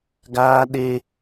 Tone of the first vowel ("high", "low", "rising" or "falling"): high